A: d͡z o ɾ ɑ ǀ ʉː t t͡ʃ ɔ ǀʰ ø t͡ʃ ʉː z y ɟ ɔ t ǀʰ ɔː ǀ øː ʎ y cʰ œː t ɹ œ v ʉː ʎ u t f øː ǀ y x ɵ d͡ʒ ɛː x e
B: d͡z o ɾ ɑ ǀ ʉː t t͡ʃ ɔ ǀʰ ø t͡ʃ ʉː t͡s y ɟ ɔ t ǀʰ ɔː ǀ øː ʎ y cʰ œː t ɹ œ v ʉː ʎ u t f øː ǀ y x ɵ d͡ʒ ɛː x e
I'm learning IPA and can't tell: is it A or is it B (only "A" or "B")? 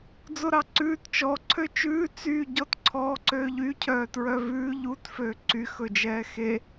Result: B